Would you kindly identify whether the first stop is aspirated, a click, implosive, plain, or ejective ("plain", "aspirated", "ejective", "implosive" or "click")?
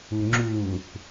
click